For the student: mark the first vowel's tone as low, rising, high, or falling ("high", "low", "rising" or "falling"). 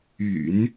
low